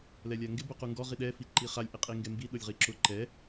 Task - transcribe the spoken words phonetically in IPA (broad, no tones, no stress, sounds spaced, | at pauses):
l ɛ lʲ a ŋ ɡ ɪ b u q u ŋ ɡ ɔ ʁ i ɗ ɛ f i ǃ i χ a lʲ ʔ i qʼ i ŋ ɡ ɛ m b i ɗ ʊ lʲ ʁ i ǁ ʊ ǃ ɛ